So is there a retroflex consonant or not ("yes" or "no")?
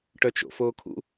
yes